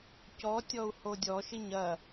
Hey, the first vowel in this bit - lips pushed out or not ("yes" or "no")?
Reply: yes